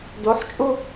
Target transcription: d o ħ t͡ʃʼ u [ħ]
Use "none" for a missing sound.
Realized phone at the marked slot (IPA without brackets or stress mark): none